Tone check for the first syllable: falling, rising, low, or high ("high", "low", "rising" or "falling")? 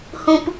high